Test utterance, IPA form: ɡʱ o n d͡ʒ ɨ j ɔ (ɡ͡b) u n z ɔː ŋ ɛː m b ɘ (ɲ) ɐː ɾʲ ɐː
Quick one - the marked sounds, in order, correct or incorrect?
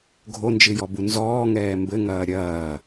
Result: incorrect: b, incorrect: ŋ

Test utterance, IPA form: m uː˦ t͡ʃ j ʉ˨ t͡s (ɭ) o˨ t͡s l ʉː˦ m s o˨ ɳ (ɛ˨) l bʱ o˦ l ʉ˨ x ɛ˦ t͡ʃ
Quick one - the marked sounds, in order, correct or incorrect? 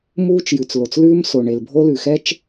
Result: incorrect: l, incorrect: e˨

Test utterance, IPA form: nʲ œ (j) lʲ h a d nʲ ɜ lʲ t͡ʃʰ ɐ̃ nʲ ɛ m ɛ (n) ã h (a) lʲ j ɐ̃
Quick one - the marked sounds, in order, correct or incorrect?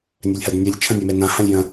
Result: incorrect: none, correct, incorrect: ã

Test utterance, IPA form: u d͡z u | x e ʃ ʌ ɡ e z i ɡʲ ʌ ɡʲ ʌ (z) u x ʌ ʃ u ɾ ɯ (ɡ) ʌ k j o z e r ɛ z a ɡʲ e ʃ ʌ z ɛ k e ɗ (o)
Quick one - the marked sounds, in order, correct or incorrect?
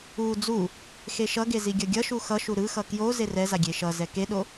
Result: incorrect: ʃ, incorrect: x, correct

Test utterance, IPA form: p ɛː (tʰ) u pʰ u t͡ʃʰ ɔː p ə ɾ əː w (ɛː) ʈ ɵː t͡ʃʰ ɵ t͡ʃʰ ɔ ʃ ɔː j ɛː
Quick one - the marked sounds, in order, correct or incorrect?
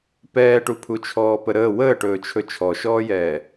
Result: incorrect: ʈ, incorrect: əː

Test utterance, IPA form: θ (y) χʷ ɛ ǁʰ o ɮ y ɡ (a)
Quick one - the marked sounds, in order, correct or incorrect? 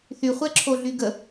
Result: correct, incorrect: ə

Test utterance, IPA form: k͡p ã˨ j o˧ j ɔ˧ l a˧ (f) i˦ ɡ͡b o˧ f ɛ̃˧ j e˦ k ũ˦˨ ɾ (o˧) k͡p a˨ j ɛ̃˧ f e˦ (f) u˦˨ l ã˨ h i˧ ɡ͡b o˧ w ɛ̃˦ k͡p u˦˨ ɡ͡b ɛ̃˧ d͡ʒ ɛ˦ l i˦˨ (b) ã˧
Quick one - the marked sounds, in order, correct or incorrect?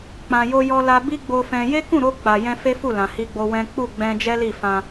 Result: incorrect: b, correct, correct, incorrect: f

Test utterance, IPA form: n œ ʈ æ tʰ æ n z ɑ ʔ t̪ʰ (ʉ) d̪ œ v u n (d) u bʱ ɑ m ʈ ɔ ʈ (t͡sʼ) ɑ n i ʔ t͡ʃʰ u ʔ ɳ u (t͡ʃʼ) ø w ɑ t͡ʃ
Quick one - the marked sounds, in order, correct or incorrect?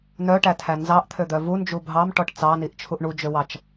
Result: incorrect: ø, incorrect: d͡ʒ, incorrect: t͡s, incorrect: d͡ʒ

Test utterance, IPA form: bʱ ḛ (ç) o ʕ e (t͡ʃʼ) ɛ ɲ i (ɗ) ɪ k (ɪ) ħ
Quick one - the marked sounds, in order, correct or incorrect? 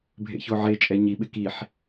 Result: correct, correct, incorrect: ɓ, incorrect: i

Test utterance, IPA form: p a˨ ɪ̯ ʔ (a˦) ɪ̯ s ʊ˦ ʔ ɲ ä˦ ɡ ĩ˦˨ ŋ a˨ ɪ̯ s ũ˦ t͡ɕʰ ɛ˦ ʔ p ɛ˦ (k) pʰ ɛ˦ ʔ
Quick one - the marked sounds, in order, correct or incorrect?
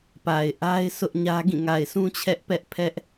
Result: correct, incorrect: ʔ

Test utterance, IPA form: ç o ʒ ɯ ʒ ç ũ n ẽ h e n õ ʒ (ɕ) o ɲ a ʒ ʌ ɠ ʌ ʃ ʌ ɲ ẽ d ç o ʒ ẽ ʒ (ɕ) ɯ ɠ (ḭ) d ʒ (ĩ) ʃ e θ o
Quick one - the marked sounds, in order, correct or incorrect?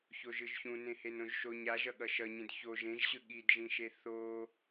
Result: incorrect: ʃ, correct, incorrect: i, correct

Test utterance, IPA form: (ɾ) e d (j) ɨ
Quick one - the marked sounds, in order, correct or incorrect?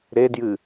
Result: correct, correct

